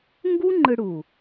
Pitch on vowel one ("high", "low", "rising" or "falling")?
high